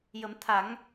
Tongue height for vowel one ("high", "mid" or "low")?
mid